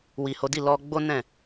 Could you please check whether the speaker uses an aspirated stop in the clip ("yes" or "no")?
no